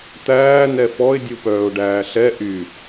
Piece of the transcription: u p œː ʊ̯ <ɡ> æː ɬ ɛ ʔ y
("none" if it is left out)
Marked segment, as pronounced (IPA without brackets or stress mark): ɖ